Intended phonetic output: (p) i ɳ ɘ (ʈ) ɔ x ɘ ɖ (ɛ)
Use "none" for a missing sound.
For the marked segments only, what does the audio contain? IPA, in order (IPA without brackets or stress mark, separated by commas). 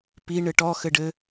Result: p, ʈ, ɘ